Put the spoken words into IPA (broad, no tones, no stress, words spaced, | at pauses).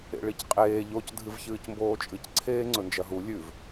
ḛɭicqʼeː ʎoc dʱɨvçɨːcmboːt͡ʃʼɨc ǀʰeːŋ͡ǀɵnd͡ʒɐɦu lʲʉv